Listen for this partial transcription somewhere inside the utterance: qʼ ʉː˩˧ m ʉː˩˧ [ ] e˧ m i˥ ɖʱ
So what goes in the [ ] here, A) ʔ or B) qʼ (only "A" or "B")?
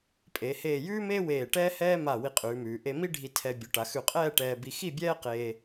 A